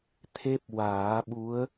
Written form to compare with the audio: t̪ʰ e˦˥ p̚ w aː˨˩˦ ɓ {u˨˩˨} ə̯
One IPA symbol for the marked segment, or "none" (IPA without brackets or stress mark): u˧˥